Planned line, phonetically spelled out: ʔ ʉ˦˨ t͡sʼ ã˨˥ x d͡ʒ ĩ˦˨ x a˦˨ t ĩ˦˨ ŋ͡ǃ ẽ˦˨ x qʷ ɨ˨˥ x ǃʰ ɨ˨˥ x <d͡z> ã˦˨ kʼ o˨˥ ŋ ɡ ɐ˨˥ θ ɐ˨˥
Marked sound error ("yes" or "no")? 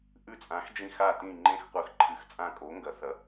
yes